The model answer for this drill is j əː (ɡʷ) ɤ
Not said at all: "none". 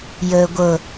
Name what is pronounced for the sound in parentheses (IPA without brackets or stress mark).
ɡʷ